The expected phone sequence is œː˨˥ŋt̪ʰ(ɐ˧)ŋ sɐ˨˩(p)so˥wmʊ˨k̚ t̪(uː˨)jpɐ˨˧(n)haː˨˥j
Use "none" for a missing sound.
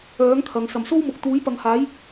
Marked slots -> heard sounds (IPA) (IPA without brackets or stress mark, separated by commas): ɐ˨, m, uː˨˥, ŋ